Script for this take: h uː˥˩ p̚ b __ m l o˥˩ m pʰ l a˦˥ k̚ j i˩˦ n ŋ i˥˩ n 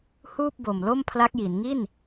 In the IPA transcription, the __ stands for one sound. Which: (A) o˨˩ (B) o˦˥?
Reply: A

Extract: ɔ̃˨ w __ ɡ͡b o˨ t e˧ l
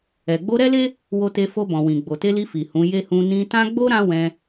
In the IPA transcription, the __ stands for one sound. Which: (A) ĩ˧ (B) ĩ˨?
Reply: B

